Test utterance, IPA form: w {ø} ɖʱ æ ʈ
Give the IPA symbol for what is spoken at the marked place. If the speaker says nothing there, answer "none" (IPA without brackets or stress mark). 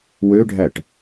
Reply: ø